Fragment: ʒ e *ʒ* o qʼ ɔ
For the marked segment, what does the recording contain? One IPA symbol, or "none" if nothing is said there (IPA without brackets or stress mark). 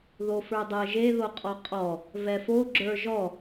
ð